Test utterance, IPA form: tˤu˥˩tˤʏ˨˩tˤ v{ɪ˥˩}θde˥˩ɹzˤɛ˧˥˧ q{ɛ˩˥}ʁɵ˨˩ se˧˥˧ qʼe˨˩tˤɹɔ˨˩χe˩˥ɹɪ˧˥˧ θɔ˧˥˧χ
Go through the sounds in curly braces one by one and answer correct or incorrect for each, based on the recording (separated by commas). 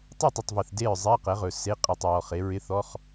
incorrect, correct